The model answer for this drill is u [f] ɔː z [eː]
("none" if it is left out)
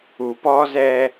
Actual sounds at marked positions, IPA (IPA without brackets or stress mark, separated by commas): p, ɛː